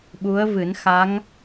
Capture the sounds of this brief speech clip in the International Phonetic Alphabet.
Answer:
ɓ u˧˥ ə̯ v ɨ˨˩˦ n x a˧˥ ŋ

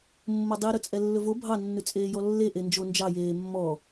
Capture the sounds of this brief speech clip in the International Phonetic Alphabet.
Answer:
mː o dˤ i ɾ ɵ t͡sʼ ɛ lː ɵ v o bʱ ɑ nː ʉ t͡sʼ eː j ɔ lː e ʔ e n d͡ʒ o n d͡ʒ ɑ j eː mː ɔ

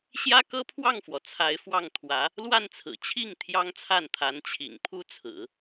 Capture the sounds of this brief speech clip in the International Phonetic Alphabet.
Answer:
ɕ j ä˥ k ɤ˥ pʰ w ɑ˥˩ ŋ f w ɔ˩ t͡sʰ a˧˥ ɪ̯ f w ɑ˥˩ ŋ t̪ʰ w ä˧˥ | l w a˥˩ n t͡sʰ ɹ̩˨˩ t͡ɕʰ i˥˩ ŋ t̪ʰ j ɑ˥ ŋ t͡sʰ a˥˩ n t̪ʰ a˧˥ n t͡ɕʰ ḭ˨˩ ŋ pʰ u˥ t͡sʰ ɹ̩˨˩˦

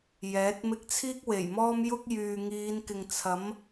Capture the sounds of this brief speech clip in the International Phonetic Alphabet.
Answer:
j ɛː˨˥ t̚ m ɪ˥ k̚ t͡sʰ iː˥ k̚ w e˨˩ j m ɔː˥ m j ʊ˥ k̚ j yː˨ ŋ iː˨˧ n k ɪ˨ ŋ t͡sʰ ɐ˨˥ m

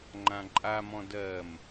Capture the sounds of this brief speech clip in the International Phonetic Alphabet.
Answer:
ŋ͡ǃ ã ǃʼ a m ɔ̃ d ɜ m

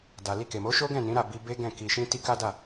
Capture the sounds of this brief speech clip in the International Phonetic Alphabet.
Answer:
d a˨ l i˧ k e˨ m o˨˦ ʃ o˦ ɡ ɛ̃˦˨ n ĩ˨˦ ɾ a˦˨ b i˧ b e˦ ɡ ɛ̃˦˨ k i˧ ʃ ĩ˦ t i˦ k a˦ d a˦˨

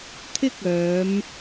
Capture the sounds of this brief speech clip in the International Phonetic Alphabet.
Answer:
t̪ʰ ɪ˥ k̚ œː˨˧ m

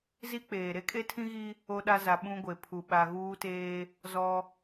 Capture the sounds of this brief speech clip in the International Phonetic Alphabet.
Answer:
z i˦ k͡p eː˨ ɾ e˦ kʼ e˦ tʰ ĩ˦ ɣ i˦ | o˦ ɗ a˦ z a˨ ɓ ũ˦ ɡʷ e˨ pʰ u˨ ɓ a˨ ɣ uː˦ t eː˦ | z ɔ˦

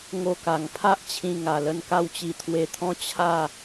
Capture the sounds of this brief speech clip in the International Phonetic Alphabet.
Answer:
ŋ o˥˧ k a˧ ŋ pʰ a˦ ʔ t͡ɕʰ ĩ˧ ŋ a˧ l ə˦ n k a˥˧ w t͡ɕ i˧ t̪ʰ w e˧ t̪ʰ ɔ̃˦ t͡ɕʰ a˥˧

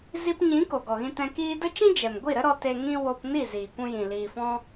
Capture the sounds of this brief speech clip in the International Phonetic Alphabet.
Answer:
z i˧ p ɲ ĩ˨˦ k o˨ ɡ ɔ˨ ɣ ĩ˧ t ɛ̃˧ k iː˧ d ə˦ t͡ʃ ĩ˦ d͡ʒ ɛ˨ m ɡʷ i˦˨ ɾ ə˦ ɾ ɔ˧ t e˧ ŋ ĩ˦ w o˧ p n i˦˨ z iː˨ kʷ ũ˧ j ĩ˨ l iː˨ f ɔ̃˧

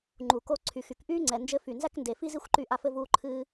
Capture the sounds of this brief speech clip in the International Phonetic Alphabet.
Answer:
ŋ͡ǃ u˨ k o˧ ǀʰ y˨ x y˨ k ʔ yː˦ ŋ͡ǀ ɛ˨ n d͡ʒ ɘ˦ f y˨ n z æ˦ k n d e˨ f i˦ z i˦ xʷ ǃ y˧ ʔ a˧ f ɘ˧ v uː˧ ǃʰ ɨː˧

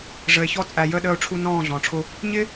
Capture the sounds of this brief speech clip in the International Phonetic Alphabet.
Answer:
ʐ ə˨ e̯ ç ɔ˧ t͡sʼ æ˨ j əː˧ ɗ əː˧ o̯ ʈ͡ʂʰ u˧ n ɔ̃ː˦˨ ɮ ɔ̃ː˨ ʈ͡ʂʰ ʊ˧ | ɲ ɪ˦

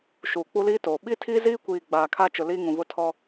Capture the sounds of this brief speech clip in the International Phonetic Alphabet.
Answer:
ʃ uː˨ k͡p u˦ l iː˦ t oː˨ ɓ i˦ tʰ i˦ z iː˦ kʷ iː˨ ɡ͡b aː˨ kʰ a˦ t͡ʃ ʊ˨ l iː˦ ŋ ũ˨ β ʊ˦ tʰ ɔ˦

